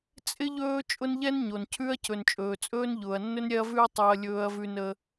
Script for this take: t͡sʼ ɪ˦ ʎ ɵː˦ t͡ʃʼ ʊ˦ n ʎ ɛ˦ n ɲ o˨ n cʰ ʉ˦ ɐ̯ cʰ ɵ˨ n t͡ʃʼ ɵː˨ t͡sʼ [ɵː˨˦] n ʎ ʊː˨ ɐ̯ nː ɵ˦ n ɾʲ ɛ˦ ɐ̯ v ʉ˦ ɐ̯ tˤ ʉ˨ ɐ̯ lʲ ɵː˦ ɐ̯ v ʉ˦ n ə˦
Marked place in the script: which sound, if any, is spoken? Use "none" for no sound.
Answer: ɵː˦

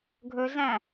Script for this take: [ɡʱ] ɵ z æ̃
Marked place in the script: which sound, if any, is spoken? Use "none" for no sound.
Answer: ɡʱ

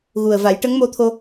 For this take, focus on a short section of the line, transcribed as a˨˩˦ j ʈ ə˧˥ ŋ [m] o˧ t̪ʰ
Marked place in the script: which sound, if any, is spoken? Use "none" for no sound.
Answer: m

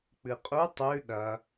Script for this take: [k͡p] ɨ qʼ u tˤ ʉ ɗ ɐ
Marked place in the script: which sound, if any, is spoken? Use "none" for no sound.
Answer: k͡p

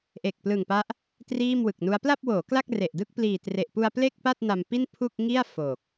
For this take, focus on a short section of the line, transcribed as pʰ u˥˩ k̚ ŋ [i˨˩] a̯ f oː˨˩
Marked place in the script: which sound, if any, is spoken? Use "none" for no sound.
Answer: i˥˩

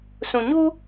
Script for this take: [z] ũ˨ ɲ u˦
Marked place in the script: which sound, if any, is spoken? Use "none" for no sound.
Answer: s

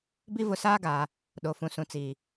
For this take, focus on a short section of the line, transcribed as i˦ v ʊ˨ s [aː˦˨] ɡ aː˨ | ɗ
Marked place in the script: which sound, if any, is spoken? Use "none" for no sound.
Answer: aː˦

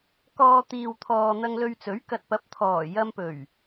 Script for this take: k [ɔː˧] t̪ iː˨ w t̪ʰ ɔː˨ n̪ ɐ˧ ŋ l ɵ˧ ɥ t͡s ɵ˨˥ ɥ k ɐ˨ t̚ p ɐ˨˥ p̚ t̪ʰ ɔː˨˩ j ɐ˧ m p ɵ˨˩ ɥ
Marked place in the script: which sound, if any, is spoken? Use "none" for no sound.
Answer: ɔː˧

